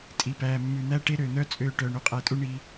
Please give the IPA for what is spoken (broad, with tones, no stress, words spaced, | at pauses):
tʼi˨pæː˨ mːʉ˨n̪æ˦ʈe˦ ɾøː˨n̪œ˦t͡sʼøː˧ ʈœː˨ɳu˧qʼæ˧tʼu˦ ɳi˧